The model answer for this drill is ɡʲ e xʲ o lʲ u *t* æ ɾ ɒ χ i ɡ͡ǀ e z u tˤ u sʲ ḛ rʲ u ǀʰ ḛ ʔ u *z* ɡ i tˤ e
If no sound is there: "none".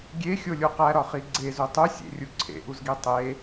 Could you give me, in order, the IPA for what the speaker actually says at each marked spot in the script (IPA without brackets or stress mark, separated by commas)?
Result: q, z